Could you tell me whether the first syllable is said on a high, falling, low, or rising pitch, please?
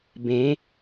rising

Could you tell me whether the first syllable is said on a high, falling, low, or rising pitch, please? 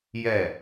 falling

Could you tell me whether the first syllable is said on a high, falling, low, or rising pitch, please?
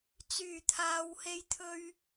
low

